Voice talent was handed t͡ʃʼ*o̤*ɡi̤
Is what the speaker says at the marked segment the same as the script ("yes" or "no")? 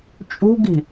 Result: no